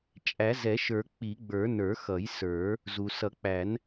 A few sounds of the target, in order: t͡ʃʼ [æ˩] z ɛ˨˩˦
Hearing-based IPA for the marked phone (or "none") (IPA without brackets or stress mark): æ˨˩˦